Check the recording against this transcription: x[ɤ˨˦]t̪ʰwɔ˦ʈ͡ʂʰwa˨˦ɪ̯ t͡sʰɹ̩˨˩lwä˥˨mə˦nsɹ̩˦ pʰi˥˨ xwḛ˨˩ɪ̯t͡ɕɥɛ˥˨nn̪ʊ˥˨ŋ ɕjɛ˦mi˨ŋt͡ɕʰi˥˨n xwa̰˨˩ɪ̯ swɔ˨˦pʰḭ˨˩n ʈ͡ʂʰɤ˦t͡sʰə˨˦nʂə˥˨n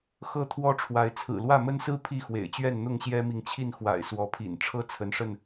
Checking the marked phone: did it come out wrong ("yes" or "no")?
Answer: yes